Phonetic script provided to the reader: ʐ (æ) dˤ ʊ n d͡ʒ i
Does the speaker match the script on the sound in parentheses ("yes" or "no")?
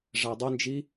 yes